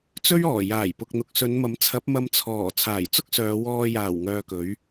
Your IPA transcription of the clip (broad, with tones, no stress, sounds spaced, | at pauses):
t͡s ɵ˥ ɥ ɔː˨˩ j aː˨˩ j p ʊ˨ k̚ n̪ ʊ˨ k̚ s ɵ˨˧ n m ɐ˨˥ m t͡sʰ ɐ˨˥ p̚ m ɐ˧ m t͡sʰ ɔː˨˩ t͡sʰ aː˨˩ j t͡s ʊ˥ k̚ s œː˨˧ w ɔː˧ j aː˨˩ w ŋ œː˧ k ɵ˨˥ ɥ